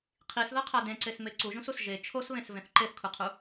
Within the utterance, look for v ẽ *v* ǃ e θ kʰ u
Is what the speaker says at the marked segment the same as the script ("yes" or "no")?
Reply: no